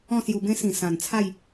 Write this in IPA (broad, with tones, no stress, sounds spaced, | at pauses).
ɔ̃˥˧ s j u˧ b ẽ˦ s ĩ˨˩ s ã˨˩ n t͡sʰ a˥˧ j